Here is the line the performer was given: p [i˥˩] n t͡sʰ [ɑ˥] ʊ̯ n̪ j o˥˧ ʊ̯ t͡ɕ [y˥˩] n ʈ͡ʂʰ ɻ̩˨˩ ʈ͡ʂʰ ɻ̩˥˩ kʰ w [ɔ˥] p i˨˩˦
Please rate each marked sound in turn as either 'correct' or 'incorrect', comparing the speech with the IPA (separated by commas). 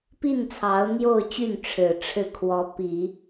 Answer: correct, incorrect, correct, incorrect